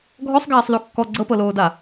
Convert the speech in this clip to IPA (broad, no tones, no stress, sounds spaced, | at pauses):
ɡʱ ɔ sˤ ɡ aː sˤ l o kː ɔ ɡ͡ǀ ɤ p ɤ l oː d a